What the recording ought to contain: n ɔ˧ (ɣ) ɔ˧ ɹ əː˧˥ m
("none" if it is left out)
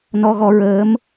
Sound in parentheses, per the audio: ɣ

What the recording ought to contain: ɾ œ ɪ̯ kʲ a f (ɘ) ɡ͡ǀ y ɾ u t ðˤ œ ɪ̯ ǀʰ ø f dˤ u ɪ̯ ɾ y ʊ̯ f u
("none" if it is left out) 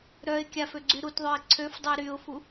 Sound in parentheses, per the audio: ø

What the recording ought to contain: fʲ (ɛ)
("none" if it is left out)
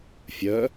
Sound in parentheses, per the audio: œ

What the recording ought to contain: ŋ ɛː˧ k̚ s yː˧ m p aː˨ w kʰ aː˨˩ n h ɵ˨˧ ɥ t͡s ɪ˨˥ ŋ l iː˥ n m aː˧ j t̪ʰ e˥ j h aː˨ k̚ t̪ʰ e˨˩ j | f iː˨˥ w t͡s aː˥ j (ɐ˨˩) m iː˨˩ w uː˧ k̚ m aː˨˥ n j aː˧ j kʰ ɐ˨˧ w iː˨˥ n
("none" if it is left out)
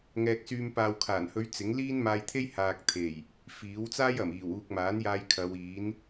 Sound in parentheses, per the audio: ɐ˨˩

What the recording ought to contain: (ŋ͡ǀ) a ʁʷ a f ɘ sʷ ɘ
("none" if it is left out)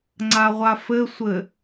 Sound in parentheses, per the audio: ŋ͡ǀ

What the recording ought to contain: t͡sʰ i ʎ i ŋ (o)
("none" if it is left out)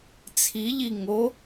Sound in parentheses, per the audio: o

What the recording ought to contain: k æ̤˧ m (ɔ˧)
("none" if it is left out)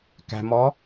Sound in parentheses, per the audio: ɔ˧˥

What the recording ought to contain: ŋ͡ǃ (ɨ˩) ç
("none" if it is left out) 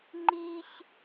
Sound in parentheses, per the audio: i˩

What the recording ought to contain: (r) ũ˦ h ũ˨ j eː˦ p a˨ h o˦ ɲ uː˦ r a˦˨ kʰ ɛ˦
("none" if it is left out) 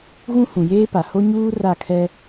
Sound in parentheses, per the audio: ɣ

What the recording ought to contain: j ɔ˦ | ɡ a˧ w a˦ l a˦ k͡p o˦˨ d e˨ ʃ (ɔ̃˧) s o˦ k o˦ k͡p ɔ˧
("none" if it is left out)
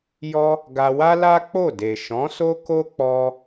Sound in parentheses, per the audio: ɔ̃˨˦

